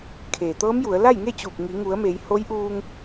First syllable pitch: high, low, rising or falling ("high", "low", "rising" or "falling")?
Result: low